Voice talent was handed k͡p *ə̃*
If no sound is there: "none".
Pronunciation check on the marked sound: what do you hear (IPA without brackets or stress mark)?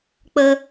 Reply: ə